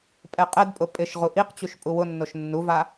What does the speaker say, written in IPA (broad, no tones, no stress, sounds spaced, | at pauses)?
pʼ ɛ qʼ ɛ d pʼ ʊ pʼ ɪ ʃ ʁ u ʔ i q t͡ɕ u ʃ pʼ u w ʊ nː o ʃ nː u v a